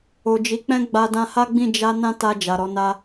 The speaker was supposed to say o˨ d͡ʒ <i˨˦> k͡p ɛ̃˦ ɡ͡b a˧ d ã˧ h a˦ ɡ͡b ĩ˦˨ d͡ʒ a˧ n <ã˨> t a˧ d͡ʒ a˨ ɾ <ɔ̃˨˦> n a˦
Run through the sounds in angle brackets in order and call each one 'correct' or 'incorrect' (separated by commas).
correct, incorrect, incorrect